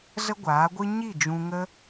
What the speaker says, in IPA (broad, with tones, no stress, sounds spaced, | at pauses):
z ə˦ ɡʷ aː˨˦ ɡʷ ɨ˦ ɲ i˦˨ d͡ʒ ũ˧ ŋ ə˦